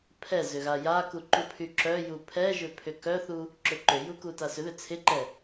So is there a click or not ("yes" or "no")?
yes